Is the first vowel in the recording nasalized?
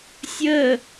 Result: no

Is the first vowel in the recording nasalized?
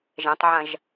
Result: yes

